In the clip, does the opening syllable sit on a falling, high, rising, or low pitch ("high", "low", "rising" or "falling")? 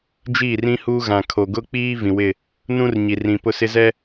falling